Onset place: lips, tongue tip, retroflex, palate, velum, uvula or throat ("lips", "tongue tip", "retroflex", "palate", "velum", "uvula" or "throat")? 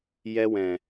palate